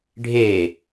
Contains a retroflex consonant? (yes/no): yes